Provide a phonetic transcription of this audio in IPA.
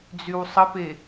d͡zywsˤəpe

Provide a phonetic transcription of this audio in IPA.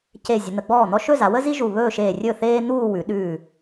ce˧˩ zʲə˩˧n̪ə˩˧ɡ͡bɔː˥˩n̪ɔ˥ ʃɵ˥˧za˩˧wə˥zi˥ ʒu˧˩βɵː˥˧ʃeː˧˩ rʲɵ˥˩θeː˥n̪uː˥˧ wʉ˩˧ɗʉː˧˩

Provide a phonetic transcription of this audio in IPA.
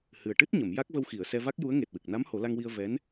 hɨ˨˩ə̯ʈɨ˦˥t̚ɲə˨˩˨m ja˦˥k̚və˧wxi˨˩˨ə̯sɛ˧ va˦˥k̚ju˧˥ə̯ ŋe˨˩t̚wɨ˨˩k̚na˧˥m ho˨˩˦la˧ŋwi˧ə̯ vɛ˧˥n

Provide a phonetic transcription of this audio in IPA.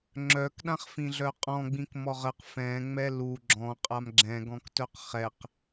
ŋ͡ǁœk ɗãχfĩɮœqʼɔ̃ ɡ͡bĩkmɔʁəq fɛ̃ ŋ͡mɛlu ɡ͡ǁɔ̃ qʼamɡ͡ǁɛ̃ ɡɔ̃ktœqχɛq

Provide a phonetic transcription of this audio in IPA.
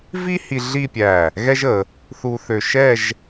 vi˥hi˧ ɮi˥˧pʲæ˧˩ | ɣɛ˥ʒə˩˧ | θu˧ θø˧ʃɛ˥˧ʒ

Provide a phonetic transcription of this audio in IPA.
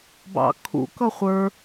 bɑ̰kʰṵkʌ χʷə˞

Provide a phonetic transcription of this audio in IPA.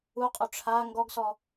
uqʼo ʈ͡ʂʰa ŋɡɔɡsɔ

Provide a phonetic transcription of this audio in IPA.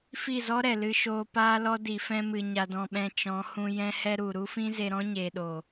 fi˦˨zɔ˦ɾɛ˨lɨ˧ ʃoː˧ paː˦lɔ˦ di˨fɛ̃˧mɨ˨ ɲa˧dɔ̃˧ɓɛ̃˧ t͡ʃɔ̃˨˦ hũ˧ jɛ̃˦hɛ˦ ɾu˨ ɾu˦fĩ˦ze˧ɾɔ̃˦ ɲeː˨ɗo˨

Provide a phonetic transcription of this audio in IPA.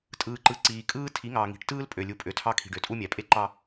tʼɯː˨ǃɯ˨ǀiː˨ kʼɯː˦ tʰi˨˦ŋɑː˨ŋi̤˨˦ʈ tɯː˦lpʼø˨ lʲu˨pʼø˨tʰɑ˦ kʰi̤˨ɖø˨tʼu˦mʲæ˨ pʼe˦ǃɑ˦

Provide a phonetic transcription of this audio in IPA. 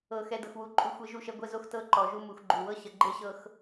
ɤ˨ xɛ˨ dɤ˨xwu˨ǃʼu˨ xʷe˦ʒu˦˨ʃɛ˦ ɡʷɛ˦zo˦xtɤ˦ ǃɔ˨ʒu˦ mu˨xɡ͡ǃu˨wɤ˦ ɕə˨ɡ͡ǃe˦ɕɤ˦x

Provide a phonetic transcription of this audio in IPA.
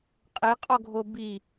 qʼeqʼɔɡʱo bi

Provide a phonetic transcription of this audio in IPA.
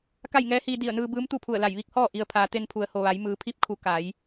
ka˥˨jŋɛː˧˥hiː˧ di˧˩ə̯nɯː˧ bɯː˧˥mt̪u˥˨pʰu˧˩ə̯la˧˩j ʋi˧˥k̚hɔː˥˨ ʔi˩ə̯pʰaː˩ t̪e˧npʰu˩˧ə̯ho˩ʋa˩˧j mɯː˩˧pʰi˧˥p̚kʰu˩˧ ka˩˧j

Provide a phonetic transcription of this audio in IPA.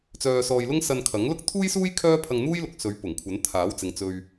t͡sœː˧sɔː˧jlʊ˥ŋ sɐ˧nkʰɐ˨˥ŋlʊ˥k̚ t̪ʰuː˥jsuː˥j kʰœː˥pʰɐ˧ŋn̪uː˥jlʊ˨k̚ sɵ˨˥ɥpʊ˨˩ŋkʷʰɐ˨˥n t̪ʰaː˨˥wt͡sɪ˨˧ŋ t͡sɵ˨ɥ

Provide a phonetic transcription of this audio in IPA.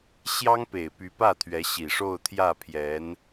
ɕjɑ˥ŋpe˨˩ɪ̯ py˧˥pä˥˩t̪ʰɥɛ˧˥ ɕi˨˩ʂo˥˧ʊ̯t̪ʰjä˥˩pʰjɛ˧˥n

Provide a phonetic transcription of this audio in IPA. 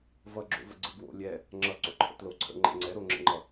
vʌɡ͡ǁo̰və̰ ɡ͡ǀɯɡwo̰ lʲɛ | ŋ͡ǁʌ ǀo̰ǃʰə̰tlo ǀʰə̰ŋ͡ǃɛ̰ ŋ͡ǀɛɾoŋ͡ǁə̰ŋ͡ǃʌ

